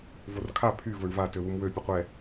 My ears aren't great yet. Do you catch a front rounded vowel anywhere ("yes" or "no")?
yes